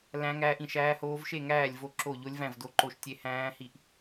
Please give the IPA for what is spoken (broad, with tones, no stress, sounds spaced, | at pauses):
l æ̃˦˥ ŋ æː˦˥ ʔ ĩ˥˨ ʃ æː˦˥ h oː˦˥ v ʃ e˥˨ ŋ æː˥˨ lʲ v o˥˨ ǁ o˥˨ ʎ o˦˥ lʲ v æ̃˥˨ v d o˥˨ ǃ o˥˨ ʃ tʲ e˦˥ h æ̃ː˦˥ h i˥˨ ʔ